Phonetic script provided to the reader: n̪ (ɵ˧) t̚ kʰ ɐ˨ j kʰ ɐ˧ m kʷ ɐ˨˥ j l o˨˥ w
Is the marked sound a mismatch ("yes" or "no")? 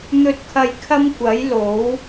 yes